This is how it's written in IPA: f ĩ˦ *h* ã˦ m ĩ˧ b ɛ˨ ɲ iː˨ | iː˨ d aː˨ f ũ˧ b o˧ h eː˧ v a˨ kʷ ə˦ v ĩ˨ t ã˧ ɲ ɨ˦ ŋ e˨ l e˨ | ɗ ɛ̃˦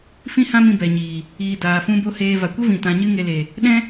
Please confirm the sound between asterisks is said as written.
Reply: yes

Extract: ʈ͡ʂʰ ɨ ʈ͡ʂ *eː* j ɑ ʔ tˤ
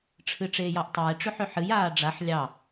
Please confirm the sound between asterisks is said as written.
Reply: yes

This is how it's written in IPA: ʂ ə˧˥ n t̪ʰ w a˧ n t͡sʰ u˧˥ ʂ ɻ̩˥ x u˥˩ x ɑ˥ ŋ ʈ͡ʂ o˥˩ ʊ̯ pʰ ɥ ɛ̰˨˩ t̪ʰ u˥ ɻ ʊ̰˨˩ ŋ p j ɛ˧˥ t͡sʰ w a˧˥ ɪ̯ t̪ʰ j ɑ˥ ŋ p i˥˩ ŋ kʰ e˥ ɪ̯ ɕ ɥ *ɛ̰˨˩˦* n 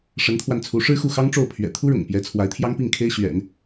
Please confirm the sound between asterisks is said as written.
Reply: yes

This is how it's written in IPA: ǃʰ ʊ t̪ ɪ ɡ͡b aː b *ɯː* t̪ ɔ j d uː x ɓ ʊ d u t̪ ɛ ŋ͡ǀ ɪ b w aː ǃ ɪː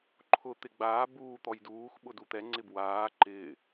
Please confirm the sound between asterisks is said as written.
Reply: no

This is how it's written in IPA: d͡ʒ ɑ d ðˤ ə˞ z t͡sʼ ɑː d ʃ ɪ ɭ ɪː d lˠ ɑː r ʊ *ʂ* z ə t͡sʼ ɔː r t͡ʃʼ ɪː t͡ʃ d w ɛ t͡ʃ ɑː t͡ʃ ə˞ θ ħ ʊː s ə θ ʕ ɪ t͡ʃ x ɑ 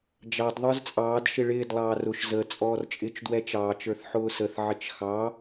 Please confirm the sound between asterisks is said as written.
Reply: no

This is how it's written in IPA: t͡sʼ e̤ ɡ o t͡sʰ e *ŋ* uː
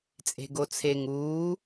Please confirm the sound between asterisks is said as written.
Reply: yes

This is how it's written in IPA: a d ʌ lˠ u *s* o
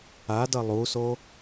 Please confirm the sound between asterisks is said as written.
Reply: yes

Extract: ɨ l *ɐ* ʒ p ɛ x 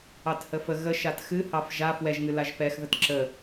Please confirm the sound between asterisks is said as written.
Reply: no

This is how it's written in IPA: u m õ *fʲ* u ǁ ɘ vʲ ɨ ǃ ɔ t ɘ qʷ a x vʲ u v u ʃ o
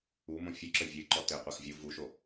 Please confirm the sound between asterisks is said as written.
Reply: yes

